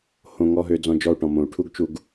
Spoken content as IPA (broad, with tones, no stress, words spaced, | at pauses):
hõ˨ ŋɔ˧ɦø˧ d͡zɔ̃˧d͡ʒɔ˦˨u̯ʈɔ̃˨ mõ˨u̯ʈʰu˦ɡt͡ʃu˧ɡ